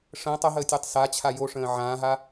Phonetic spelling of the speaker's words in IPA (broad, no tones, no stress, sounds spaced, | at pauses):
ʂ ə̃ː tˤ ə ɦ əː tʲ e tˤ s a t͡ɕʰ a j o ʂ ə̃ː ʕ ãː ɦ a